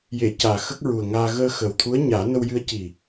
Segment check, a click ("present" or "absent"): absent